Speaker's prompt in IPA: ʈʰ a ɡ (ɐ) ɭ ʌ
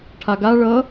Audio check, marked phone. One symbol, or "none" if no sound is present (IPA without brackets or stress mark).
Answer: a